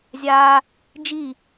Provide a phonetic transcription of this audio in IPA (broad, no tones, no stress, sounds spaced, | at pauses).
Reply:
zʲ a | d͡ʒ i